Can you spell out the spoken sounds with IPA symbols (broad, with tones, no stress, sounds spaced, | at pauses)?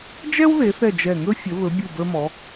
d͡ʒ ɛ˥ w ð e˩˧ θ ɛ˧˩ d͡ʒ ɛ˧˩ ŋ ɵ˥ fʲ ə˩˧ β ɵ˩˧ bʲ u˧˩ b ə˞˧ m ɔ˩˧